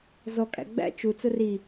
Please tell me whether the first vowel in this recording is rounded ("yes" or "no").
yes